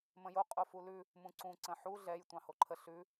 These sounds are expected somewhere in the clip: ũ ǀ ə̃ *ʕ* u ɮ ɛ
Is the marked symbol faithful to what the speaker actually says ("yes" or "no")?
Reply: no